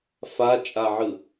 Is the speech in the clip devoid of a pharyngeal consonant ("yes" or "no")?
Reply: no